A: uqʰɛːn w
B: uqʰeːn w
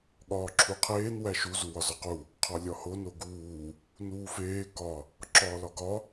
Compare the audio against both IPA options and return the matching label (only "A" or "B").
B